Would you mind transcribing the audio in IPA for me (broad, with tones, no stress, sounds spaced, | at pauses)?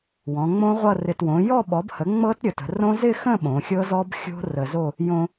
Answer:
w ɔ̃˩˧ ŋ͡m õ˦˥ ʁʷ ʌ˥˧ r ɪ˧ t w õ˩˥ j ɔ˥˧ ɓ ɔ˩˥ b h ə˩˥ ŋ͡m ɤ˦˥ t ɾʲ ə˩˧ t ə̤˩˧ r õ˦˥ z ɪ˥˧ x ə̃˥˧ ɓ õ˩˧ xʲ ɤ˦˥ z ɔ˦˥ b xʲ o̤˦˥ r ə˧ z o˥˧ | j õ˧